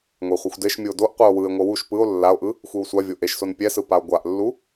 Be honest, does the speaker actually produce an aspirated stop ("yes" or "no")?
no